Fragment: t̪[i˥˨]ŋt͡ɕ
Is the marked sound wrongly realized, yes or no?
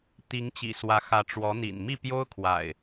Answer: yes